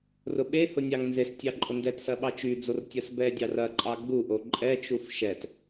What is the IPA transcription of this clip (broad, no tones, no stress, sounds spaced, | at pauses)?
r ʊ ɓ e h ʊ nʲ ɑ ŋ n z e s tʲ ɑ ǃʼ ʊ n d ɛ t s ɐ ɓ ɑ t͡ʃ y d͡z o r tʲ ɐ s b ɛ dʲ ɑ r ɐ ǃʼ ɑ ɡ͡b u ʔ o ǃʼ ɛ t͡ʃ u f ʃ ɛ t